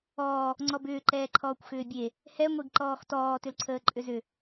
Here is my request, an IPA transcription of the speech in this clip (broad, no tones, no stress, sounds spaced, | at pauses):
ɔː | ŋ͡ǀ ɔ b ʏː ǃ ɛː ǃʰ ɔː kʷ x ʏː bʲ e | h ɛ ŋʷ e ɡ ǃ ɔː x t ɔː t ʏ l ǀʰ əː ǃʼ ʏ z ʏ